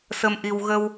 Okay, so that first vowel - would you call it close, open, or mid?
mid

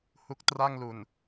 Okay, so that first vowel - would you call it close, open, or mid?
close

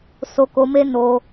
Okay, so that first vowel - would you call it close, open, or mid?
mid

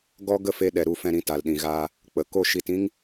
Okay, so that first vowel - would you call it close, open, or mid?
mid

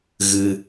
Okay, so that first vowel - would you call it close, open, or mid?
close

